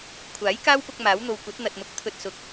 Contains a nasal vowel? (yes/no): no